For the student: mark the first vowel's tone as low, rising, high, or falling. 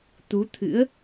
rising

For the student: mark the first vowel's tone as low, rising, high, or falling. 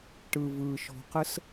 low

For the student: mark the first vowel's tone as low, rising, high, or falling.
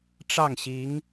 falling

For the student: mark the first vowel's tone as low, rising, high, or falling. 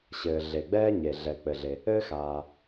low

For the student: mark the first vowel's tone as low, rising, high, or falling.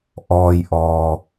low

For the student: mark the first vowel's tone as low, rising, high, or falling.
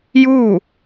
falling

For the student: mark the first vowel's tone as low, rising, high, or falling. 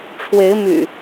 rising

